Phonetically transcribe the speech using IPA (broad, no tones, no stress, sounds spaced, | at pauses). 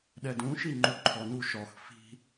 ɗ ɛ d ũ ʃ i ŋ͡ǃ u ǃʰ ɔ n u ʃ ɔ x f i̤